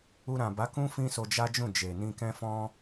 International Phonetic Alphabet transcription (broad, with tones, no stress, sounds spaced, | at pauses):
u˧ ɾ ã˨ b a˨˦ k ũ˦ f ĩ˦ s o˧ d͡ʒ a˦ d͡ʒ ũ˦˨ d͡ʒ e˨ n ĩ˧ k ɛ̃˦ f ɔ̃˦